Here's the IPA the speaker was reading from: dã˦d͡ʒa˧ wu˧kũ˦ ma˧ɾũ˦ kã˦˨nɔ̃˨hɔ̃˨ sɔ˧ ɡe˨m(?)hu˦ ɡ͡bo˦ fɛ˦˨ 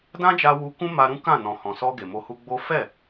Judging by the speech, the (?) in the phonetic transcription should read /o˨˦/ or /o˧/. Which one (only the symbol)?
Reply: o˧